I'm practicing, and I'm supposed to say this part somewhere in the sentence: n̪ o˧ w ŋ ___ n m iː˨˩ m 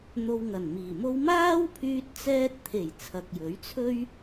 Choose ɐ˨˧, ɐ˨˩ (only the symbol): ɐ˨˩